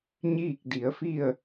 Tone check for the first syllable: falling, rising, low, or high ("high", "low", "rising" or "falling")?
falling